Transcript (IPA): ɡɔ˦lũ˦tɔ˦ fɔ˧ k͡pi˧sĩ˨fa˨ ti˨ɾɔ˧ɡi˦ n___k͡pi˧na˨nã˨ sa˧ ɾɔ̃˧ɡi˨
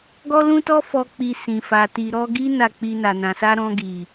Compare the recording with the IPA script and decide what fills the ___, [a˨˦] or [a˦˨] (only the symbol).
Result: a˦˨